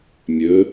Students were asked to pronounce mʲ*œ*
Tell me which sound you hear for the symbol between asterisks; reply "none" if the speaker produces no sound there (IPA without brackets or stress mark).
ɵ